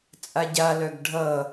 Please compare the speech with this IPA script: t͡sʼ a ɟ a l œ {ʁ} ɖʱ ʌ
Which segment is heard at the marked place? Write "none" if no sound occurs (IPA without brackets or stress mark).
ɡ